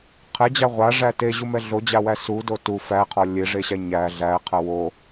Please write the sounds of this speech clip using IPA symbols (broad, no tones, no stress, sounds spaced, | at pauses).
qʰ ɛ d͡ʑ a ʁʷ a ʐ æ t e ʑ u m ɛ ɮ o d͡ʑ a w æ s u d o t u f æ qʰ ɔ lʲ e ʐ e ɕ æ ɲ æ ɮ æ qʰ ɐ w o